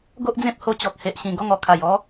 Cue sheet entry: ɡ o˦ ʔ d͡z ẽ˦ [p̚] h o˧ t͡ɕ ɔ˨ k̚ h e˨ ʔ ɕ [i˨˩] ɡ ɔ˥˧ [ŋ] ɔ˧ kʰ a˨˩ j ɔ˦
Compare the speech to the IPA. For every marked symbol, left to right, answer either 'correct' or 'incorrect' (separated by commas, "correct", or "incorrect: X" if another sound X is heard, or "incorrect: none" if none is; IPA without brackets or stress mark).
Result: correct, incorrect: ĩ˨˩, correct